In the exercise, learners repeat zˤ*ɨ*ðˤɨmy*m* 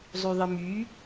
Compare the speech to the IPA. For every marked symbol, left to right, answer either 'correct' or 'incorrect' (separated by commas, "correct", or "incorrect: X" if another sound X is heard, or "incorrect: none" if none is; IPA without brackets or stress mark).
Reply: incorrect: y, incorrect: none